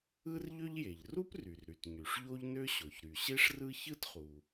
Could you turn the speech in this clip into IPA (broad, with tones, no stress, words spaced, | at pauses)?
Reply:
ɯ˥rʎø˥ʎje˩ʎ ru˥p ry˩rɾy˩t ɲy˩ʂʎo˥ʎnø˥ɕo˩ç ɾy˩ɕe˥ʂrɯ˥ çɯ˥tχu˩